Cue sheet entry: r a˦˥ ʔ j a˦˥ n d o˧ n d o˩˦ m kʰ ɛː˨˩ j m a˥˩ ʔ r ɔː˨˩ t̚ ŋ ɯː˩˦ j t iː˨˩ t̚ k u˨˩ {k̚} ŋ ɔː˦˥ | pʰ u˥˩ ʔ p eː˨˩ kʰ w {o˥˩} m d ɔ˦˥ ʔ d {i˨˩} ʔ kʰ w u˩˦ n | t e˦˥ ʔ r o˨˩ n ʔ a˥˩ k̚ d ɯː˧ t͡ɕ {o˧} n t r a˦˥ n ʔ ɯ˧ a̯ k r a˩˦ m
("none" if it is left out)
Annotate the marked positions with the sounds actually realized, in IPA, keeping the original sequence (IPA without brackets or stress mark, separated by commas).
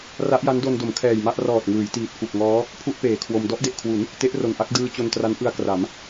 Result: k̚, o˧, e˨˩, o˧